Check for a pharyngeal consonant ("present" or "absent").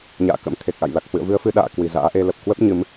absent